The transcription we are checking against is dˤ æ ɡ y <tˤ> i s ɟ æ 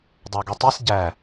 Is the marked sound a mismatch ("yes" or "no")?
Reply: no